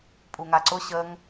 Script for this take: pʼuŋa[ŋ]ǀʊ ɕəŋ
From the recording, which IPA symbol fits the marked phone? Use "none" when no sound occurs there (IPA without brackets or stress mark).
none